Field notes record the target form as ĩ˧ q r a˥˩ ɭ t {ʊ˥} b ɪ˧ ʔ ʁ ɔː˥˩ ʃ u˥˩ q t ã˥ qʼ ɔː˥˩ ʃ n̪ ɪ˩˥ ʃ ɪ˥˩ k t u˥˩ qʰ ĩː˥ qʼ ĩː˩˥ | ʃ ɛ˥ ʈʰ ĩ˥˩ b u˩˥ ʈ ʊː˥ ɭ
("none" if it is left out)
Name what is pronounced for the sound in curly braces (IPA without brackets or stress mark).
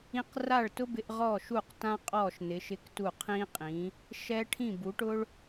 ʊ˥